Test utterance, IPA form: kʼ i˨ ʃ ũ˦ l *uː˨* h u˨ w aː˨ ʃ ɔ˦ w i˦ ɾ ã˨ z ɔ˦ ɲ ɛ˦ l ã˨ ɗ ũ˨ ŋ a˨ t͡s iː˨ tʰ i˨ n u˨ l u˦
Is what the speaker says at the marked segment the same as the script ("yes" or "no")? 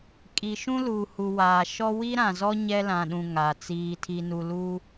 yes